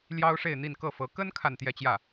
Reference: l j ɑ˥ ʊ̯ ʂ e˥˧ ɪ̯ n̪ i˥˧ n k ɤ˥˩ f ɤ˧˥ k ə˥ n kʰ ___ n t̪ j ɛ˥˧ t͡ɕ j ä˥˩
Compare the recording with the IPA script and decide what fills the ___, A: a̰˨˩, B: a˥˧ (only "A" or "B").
B